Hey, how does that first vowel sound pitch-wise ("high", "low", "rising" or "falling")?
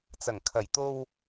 low